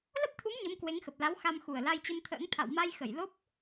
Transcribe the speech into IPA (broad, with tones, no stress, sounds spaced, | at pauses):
l ə˦˥ p̚ t̪ʰ u˨˦ m ɲ ə˨˦ m k w e˨˦ ŋ x ə˨˩ p̚ l a˨˦ w x a˧ m x u˨˩ ə̯ l a˧ j t͡ɕ ə˧ m t̪ʰ ə̰ː˧˥ ŋ t̪ʰ a̰˧˨ w m a˧ j x ə˧˩ j l o˦˥ p̚